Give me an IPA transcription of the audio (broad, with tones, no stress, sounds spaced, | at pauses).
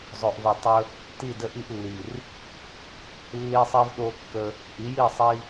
zˤ o˨ ʔ v ɵ˨ tˤ ɵ˦ | t i˦˨ d ə˦ ʔ i˦ ʔ lː i˨ r | lː i˦ sˤ i˦ v ɗ o˦ kː ə˦ | ʔ i˨˦ j i˦˨ sˤ i˦